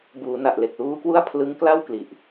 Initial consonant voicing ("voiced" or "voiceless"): voiced